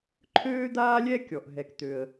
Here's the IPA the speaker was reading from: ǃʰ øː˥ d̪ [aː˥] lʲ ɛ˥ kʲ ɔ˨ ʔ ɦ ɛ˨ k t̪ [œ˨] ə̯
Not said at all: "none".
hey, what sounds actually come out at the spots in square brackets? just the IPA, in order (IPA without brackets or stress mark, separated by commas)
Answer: aː˥, ø˨